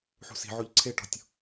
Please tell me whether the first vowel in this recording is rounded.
yes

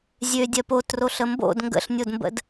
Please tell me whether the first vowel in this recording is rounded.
yes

